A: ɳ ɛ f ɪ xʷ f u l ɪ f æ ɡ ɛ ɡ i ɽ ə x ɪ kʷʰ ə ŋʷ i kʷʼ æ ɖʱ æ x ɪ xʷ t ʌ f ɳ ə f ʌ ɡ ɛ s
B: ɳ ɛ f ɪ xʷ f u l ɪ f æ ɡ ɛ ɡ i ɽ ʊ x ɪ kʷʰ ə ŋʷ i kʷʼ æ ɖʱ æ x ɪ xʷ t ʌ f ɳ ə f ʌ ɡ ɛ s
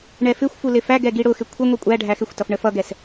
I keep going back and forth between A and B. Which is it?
B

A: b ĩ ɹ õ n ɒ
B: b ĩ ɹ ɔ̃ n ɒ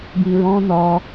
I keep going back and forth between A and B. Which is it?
B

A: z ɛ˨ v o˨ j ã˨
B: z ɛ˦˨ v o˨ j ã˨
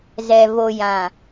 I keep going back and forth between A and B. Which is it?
A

